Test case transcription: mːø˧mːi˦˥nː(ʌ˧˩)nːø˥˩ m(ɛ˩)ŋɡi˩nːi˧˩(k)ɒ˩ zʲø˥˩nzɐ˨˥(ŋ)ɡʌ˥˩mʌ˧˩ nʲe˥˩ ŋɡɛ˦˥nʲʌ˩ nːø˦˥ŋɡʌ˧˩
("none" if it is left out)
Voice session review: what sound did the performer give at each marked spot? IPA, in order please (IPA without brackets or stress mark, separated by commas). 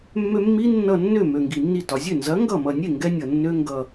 ʌ˧˩, ø˩, t, ŋ